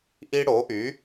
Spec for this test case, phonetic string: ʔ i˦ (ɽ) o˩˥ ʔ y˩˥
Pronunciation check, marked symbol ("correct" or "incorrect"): correct